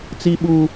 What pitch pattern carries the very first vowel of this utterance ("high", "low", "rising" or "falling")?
high